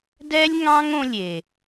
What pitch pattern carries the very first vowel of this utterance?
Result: high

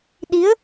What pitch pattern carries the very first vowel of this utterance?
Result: rising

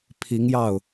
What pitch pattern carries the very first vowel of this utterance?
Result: rising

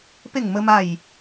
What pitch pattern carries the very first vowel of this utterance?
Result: falling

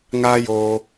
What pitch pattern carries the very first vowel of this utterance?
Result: high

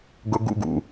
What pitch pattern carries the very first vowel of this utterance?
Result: high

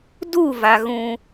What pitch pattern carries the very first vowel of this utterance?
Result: falling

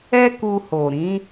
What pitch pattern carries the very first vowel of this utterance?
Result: high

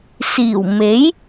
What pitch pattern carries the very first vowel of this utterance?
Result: low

